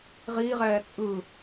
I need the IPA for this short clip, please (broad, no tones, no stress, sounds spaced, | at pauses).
ʁ iː ʁ ɛː t͡sʼ ɯ